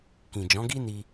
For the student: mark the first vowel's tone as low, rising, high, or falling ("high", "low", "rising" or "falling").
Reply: low